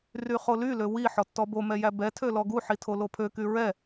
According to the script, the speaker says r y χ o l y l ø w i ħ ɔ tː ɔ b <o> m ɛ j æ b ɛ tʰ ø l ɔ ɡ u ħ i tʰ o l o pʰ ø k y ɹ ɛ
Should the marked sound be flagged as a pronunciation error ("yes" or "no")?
no